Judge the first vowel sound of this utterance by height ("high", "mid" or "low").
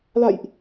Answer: low